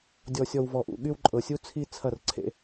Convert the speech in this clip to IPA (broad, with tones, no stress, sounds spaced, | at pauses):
dʲ ɔ˨ sʲ ɔ˨ w v ɔ˨ ʔ ṵ˨ ɠ y˦ w ǃʼ ɤ˨ sʲ u˦ t͡sʰ i˦ t͡sʰ ɐ˦˨ r ǀʰ ḛ˦